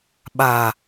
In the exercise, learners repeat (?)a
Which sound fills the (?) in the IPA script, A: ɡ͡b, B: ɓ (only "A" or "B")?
B